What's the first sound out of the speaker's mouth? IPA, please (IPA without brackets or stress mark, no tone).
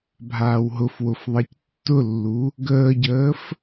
bʱ